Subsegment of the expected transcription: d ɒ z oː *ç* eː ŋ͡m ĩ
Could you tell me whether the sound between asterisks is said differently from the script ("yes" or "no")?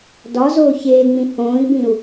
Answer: no